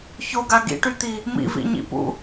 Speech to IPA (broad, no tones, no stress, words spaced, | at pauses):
çoɡa ɡḭʈyt̪i | mḭvḭɲḭpṵ